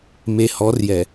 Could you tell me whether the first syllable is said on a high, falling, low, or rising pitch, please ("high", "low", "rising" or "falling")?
low